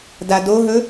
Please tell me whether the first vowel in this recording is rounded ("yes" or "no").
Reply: no